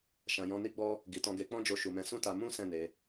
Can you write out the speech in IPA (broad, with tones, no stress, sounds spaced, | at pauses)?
ʃ ã˨ j ɔ̃˧ n i˦ ɡ͡b ɔ˦ | ɡ i˨ t ɔ̃˧ ɡ e˧ k͡p ɔ̃˦ d͡ʒ o˧ ʃ u˨ m ɛ̃˧ s ũ˦ t a˧ m ũ˦ s ɛ̃˦˨ n e˧